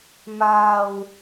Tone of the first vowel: low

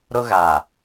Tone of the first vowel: high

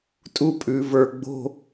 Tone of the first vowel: falling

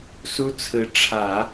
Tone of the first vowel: high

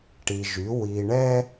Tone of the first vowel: low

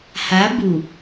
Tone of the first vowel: rising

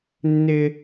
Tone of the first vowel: high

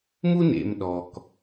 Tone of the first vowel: high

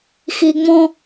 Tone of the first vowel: low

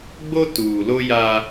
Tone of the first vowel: high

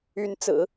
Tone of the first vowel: rising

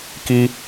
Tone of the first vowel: high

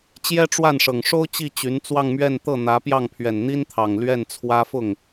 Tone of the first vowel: high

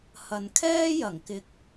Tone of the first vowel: low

